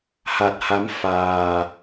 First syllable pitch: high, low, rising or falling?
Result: low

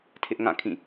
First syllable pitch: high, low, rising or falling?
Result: high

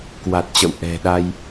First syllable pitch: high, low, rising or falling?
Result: low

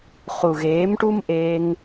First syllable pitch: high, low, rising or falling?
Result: low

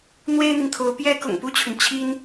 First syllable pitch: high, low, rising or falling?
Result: high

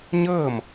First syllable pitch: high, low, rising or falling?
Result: falling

